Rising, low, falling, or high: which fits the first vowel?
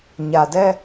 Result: low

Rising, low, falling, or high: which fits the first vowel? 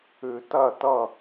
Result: low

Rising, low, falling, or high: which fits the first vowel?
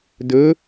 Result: rising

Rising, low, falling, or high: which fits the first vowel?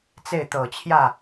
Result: falling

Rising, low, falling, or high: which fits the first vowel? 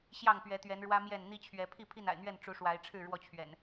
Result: falling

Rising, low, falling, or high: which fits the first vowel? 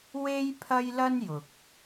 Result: high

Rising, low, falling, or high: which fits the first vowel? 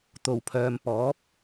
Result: low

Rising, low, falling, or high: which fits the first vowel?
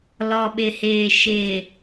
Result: low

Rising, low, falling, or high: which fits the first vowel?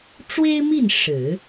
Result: high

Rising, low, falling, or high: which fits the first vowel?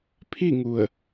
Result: falling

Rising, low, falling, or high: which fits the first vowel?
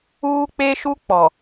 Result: high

